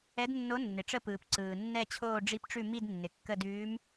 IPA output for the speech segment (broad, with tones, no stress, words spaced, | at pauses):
ɛ˧˥dnːo˧˥ nːɪ˩ʈ͡ʂə˦˨pɯː˩p ǀɯː˩nːɛ˦˨ t͡ɕʰoː˦˨ɖ͡ʐi˧˥pʈ͡ʂʉ˦˨ mi˦˨dnːɪ˩ kːə˦˨dʉː˧˥m